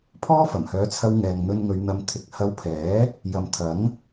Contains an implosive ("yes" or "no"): no